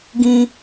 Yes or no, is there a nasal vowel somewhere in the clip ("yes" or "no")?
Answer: yes